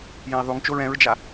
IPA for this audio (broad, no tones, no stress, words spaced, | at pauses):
jẽi̯ðˤuŋt͡ʃoɹ ɛ̃ɹd͡ʒa